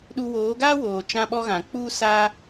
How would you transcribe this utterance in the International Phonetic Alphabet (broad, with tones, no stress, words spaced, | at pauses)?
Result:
ɗu˧woː˨˦ɡa˦woː˨ t͡ʃã˧ɓɔ˧ɣã˨ k͡pu˦sa˦